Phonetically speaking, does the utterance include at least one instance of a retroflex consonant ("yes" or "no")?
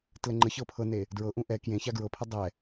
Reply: no